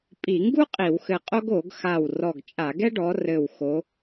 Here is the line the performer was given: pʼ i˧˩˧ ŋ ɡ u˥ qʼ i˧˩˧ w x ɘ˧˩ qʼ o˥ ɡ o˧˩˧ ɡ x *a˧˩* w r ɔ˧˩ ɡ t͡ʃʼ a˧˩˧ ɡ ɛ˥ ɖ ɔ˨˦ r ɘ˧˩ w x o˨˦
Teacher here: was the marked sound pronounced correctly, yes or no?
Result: yes